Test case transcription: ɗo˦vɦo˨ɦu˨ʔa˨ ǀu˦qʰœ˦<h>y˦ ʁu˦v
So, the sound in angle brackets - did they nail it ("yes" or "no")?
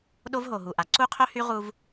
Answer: yes